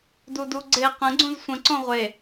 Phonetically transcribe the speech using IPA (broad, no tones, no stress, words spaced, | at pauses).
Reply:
duduɡ͡ǀe qə̃ ɡ͡ǀũzsʷə̃ ǀõʁʷe